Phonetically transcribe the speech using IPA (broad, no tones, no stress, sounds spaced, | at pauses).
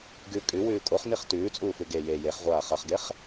ɡ ʉ kʼ ʉ w ʉː kʼ o χ n i χ t ʉː t͡sʼ uː f ʉ ɡ e j e j e χ ʁʷ aː χ ɐ χ ɡ e χ